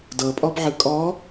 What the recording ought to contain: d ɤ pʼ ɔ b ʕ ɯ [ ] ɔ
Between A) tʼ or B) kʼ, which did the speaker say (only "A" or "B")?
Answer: B